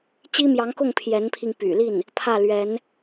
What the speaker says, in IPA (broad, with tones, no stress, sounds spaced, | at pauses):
t͡ɕ i˥ m j ɑ˧˥ ŋ k ʊ˥˩ ŋ pʰ j ɛ˧˥ n pʰ i˧ ŋ p y̰˨˩ l i˥˩ n | pʰ ä˥˩ l ɥ ɛ˧˥ n